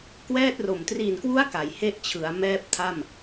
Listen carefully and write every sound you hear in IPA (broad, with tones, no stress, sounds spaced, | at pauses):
k w ɛː˥˩ t̚ r o˨˩ m t r i˨˩ n k w u˦˥ a̯ k a˩˦ j h e˥˩ ʔ t͡ɕʰ ɯ˩˦ a̯ m ɛː˥˩ p̚ tʰ a˥˩ m